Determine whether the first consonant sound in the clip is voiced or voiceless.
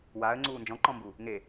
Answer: voiced